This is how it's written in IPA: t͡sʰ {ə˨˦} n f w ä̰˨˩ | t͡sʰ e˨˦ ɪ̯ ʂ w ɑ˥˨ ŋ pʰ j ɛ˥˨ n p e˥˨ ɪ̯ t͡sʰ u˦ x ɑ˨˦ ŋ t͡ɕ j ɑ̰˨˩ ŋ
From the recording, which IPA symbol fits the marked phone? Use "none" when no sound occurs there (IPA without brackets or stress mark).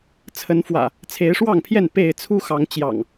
ə˨˦